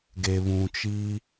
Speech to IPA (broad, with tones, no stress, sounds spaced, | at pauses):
ɡ e˨ β ũ˨ t͡ʃ i˦